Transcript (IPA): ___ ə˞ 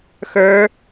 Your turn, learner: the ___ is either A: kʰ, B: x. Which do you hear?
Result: B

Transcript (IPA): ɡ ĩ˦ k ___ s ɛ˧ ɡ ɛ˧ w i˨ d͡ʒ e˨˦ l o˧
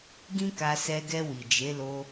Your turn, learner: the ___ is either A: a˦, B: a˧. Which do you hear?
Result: B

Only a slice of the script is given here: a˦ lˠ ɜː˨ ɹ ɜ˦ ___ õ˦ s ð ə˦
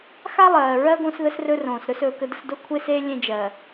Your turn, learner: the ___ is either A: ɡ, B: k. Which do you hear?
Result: A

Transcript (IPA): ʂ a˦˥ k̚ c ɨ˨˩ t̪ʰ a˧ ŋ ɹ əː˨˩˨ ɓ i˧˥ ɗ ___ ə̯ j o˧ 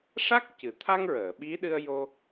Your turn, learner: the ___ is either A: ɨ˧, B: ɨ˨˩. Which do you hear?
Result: A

